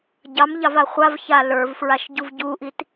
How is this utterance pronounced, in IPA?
ɟ ɑ m ʎ ɑ v a χʷ a v ç a l ə˞ v f ɹ a ʃ ɟ u v ɟ u ʔ i t

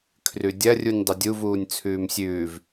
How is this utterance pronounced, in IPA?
kʰ r ʉ dʲ ɐ rʲ u nʲ dˤ ɨ dʲ u v uː nʲ t͡sʰ ʉː m sʲ ʉː v

